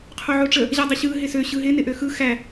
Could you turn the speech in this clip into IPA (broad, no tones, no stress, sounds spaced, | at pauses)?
qʰ o ʕ o ʈ͡ʂ ə | ʑ a dˤ ɪ ɕ ɯ ɦ ɪ s ø ɕ ɯ ɦ ɪ n ɪ ʔ ø x ɯ x æ